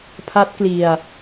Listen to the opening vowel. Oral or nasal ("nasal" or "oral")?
oral